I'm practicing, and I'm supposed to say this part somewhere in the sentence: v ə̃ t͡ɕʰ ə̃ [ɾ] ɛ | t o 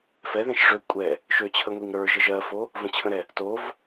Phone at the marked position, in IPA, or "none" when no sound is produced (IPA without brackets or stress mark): ɾ